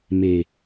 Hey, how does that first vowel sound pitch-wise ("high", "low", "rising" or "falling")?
low